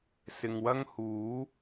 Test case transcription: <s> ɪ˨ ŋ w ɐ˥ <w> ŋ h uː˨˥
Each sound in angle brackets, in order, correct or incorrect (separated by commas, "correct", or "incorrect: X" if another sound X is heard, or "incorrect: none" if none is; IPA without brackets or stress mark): correct, incorrect: none